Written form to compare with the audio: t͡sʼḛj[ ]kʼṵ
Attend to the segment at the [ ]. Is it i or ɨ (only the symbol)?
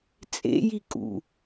i